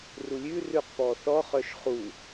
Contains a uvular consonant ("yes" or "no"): yes